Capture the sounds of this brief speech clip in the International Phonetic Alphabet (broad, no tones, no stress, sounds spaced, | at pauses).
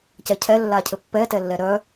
c ɛ cʰ ɛ lː a cʰ ɘ pː ɛ t ɛ lː ɛ ɾ œ